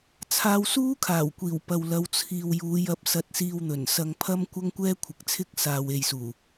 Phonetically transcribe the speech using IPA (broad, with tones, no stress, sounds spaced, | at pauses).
t͡sʰ aː˧ w s uː˥ kʰ aː˨˩ w kʷ iː˨˩ w p ɐ˨ w l ɐ˨˧ w t͡sʰ iː˨ w j uː˨˧ j ɐ˨˥ p̚ s ɐ˧ t̚ s iː˧ w n̪ ɵ˨˩ n s ɐ˧ ŋ pʰ ɐ˥ m kʷ ɐ˥ ŋ kʷ ɛː˥ kʷʰ ɪ˨˥ k̚ t͡sʰ ɪ˥ k̚ s aː˨ w e˨ j s uː˨˩